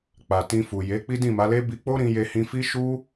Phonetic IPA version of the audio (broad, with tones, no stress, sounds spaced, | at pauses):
k͡p a˨ t ĩ˧ f u˨ j e˨˦ k͡p i˦ d ĩ˦˨ m a˨˦ l e˦ b i˧ k͡p o˦ ɾ ĩ˧ j e˧ h ĩ˧ f i˦ ʃ u˦